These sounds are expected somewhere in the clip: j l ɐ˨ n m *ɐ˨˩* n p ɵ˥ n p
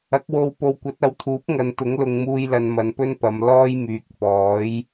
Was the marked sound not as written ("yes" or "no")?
yes